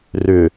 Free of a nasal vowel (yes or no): yes